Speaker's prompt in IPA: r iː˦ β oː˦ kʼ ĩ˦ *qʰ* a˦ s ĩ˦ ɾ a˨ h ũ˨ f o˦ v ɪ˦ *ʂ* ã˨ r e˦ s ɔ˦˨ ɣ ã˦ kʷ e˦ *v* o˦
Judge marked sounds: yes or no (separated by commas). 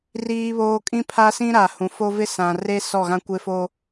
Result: no, no, no